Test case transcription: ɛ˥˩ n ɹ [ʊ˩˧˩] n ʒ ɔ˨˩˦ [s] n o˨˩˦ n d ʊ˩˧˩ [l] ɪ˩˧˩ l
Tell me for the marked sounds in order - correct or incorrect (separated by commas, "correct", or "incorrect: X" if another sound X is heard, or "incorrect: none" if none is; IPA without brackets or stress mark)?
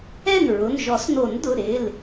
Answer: correct, correct, incorrect: ɾ